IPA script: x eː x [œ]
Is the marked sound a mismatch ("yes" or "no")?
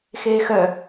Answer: no